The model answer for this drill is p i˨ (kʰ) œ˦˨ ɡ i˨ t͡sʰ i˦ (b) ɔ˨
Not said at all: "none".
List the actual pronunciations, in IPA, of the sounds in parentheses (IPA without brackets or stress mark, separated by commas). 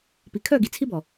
kʰ, b